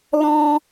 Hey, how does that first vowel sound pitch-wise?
high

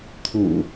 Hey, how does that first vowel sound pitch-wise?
low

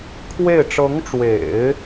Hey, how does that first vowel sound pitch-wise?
falling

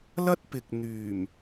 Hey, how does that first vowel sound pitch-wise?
high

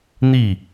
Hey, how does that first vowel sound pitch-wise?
falling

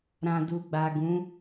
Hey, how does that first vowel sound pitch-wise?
low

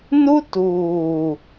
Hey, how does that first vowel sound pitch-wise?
high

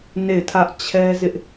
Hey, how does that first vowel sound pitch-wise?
falling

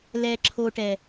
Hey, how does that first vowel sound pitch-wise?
low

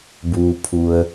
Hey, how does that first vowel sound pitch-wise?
low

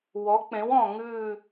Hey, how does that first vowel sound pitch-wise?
rising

